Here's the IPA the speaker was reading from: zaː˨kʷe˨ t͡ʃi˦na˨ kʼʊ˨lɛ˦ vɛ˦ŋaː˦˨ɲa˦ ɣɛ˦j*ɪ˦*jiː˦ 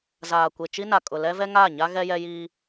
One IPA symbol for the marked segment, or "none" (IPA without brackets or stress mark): ɛ˦